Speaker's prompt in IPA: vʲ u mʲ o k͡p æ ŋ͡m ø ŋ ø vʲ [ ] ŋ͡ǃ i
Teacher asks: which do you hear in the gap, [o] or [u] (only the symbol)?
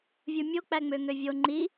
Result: o